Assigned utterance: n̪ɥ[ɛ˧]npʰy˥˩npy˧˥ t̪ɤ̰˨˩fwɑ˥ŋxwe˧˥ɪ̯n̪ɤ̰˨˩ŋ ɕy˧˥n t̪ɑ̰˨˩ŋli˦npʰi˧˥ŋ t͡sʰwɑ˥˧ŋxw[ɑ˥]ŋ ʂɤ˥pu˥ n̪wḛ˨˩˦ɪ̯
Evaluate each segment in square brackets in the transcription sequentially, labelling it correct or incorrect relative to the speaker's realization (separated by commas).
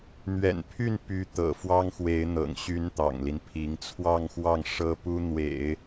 incorrect, incorrect